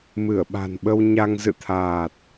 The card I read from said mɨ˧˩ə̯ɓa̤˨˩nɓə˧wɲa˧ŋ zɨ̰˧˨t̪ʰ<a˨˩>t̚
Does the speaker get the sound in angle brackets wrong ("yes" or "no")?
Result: yes